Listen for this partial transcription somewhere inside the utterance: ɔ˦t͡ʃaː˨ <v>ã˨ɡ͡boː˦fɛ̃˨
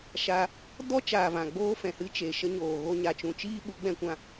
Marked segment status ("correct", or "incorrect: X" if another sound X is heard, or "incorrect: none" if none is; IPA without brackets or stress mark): correct